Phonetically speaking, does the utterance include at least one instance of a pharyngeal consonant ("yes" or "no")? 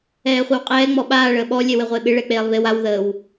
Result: no